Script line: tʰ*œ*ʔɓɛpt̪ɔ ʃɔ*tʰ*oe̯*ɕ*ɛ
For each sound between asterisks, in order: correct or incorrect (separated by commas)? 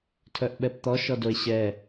correct, incorrect, correct